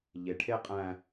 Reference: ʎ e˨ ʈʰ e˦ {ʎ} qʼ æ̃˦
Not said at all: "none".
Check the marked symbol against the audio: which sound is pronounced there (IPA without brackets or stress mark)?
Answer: none